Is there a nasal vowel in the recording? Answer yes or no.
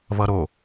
no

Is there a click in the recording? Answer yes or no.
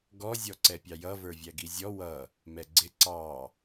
yes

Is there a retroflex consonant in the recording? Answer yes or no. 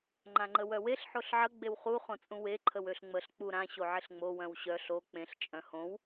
no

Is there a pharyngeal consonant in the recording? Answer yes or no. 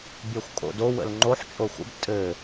yes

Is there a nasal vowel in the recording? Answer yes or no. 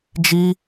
no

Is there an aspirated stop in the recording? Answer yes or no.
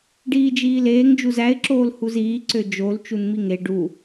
no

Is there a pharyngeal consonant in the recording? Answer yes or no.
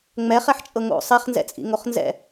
yes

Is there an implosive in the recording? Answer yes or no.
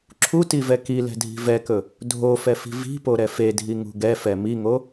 no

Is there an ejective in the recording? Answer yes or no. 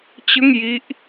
no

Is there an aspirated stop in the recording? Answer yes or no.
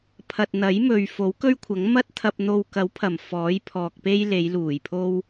yes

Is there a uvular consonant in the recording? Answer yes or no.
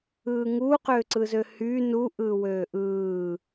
yes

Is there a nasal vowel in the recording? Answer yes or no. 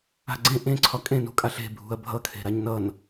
yes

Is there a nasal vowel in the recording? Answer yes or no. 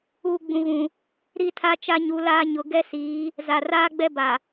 yes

